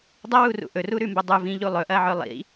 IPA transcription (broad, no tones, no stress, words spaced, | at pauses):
dˤɐwurṵ ʔɵruɾʉmbɐ dˤuvĩʎu lˠɵʔɐʕɵ lˠḭ